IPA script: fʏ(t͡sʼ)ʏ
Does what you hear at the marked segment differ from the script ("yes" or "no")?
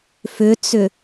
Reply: yes